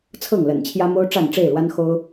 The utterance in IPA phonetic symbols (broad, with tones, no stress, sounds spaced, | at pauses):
t͡sʰ ɤ˥˨ ŋ l ə̰˨˩ n t͡ɕʰ j ä˦ m o˦ ʊ̯ ʈ͡ʂ a˥˨ n ʈ͡ʂ e˥˨ ɪ̯ l w a˦ n x o˦ ʊ̯